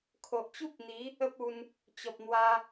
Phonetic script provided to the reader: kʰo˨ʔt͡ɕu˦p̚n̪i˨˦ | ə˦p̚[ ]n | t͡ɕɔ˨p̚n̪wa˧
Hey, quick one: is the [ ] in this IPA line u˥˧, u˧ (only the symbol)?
u˧